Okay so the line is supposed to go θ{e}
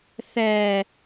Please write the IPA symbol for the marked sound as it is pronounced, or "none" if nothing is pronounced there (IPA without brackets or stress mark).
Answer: ɛ